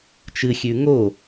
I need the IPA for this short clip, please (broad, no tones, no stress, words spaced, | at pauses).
t͡ʃɨxʲʉ ŋo